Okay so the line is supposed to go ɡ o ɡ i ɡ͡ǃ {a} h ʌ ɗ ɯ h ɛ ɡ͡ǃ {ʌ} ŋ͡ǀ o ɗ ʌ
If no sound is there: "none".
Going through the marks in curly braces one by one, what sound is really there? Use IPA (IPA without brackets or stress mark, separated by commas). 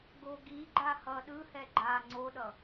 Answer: a, a